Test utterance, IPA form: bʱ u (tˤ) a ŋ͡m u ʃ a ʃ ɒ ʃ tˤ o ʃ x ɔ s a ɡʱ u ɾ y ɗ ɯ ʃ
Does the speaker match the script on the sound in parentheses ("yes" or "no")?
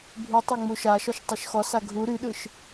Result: yes